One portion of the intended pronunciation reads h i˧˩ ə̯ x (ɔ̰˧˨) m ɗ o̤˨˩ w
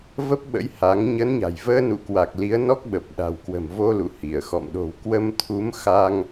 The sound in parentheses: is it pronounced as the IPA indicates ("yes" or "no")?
yes